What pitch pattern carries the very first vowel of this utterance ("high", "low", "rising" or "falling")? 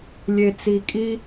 low